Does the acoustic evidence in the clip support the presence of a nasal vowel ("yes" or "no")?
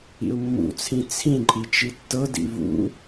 yes